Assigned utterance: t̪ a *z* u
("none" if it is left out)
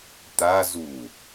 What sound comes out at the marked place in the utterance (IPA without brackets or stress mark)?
z